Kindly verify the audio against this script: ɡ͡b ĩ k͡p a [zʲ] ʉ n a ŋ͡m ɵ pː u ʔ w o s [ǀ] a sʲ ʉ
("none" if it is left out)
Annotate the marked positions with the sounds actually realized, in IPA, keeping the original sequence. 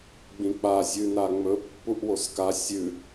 zʲ, k

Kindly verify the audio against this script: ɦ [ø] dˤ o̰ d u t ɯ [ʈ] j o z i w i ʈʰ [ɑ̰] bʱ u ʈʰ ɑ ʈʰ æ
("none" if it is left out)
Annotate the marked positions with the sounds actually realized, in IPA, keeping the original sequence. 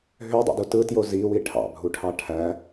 ø, t, ɑ̰

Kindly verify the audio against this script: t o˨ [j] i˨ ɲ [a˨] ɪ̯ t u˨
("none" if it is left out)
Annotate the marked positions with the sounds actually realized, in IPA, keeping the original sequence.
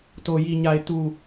j, a˨

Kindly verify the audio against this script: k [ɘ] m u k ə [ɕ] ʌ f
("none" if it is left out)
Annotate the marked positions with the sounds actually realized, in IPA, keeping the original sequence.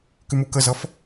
ʉ, z

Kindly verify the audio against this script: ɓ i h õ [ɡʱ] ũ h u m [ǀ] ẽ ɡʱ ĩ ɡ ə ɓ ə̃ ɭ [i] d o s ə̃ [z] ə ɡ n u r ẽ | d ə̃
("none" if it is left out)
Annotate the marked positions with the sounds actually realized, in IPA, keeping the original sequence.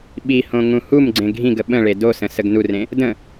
ŋ, ɡ͡ǀ, e, s

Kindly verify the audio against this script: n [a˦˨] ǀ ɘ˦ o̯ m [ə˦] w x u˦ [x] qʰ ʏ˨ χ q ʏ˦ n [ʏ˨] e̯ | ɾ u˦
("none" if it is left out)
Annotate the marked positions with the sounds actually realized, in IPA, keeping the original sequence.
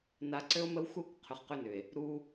a˨, ə˦, k, ʏ˨

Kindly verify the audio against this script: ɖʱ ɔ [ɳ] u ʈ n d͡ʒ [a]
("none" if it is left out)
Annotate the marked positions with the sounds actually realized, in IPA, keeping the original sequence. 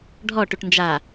ʈ, a

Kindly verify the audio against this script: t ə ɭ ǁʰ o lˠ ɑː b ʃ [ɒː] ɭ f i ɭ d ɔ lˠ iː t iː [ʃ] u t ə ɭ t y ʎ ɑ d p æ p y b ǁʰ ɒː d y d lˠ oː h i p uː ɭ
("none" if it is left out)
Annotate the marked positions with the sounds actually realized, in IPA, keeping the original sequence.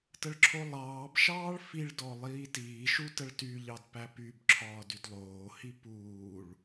ɑː, ʃ

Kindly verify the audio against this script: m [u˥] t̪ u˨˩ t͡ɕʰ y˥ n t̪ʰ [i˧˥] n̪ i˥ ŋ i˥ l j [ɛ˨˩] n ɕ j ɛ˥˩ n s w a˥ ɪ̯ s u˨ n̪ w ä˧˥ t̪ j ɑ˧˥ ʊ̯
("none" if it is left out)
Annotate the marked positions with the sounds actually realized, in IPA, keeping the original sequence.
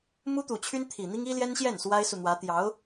u˥, i˨˩, ɛ˥

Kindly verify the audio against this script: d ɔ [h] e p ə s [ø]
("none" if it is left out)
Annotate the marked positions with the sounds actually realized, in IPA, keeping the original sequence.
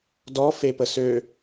f, ø

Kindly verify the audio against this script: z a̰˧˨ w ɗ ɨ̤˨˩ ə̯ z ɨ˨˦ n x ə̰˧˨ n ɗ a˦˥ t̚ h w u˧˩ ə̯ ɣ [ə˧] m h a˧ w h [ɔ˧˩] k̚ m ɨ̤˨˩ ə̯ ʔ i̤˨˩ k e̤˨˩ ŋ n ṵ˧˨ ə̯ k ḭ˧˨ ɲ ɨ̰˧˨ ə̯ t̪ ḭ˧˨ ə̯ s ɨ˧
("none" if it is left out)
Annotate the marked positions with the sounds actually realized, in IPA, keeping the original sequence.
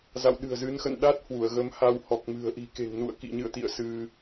ə˨˦, ɔ˨˩

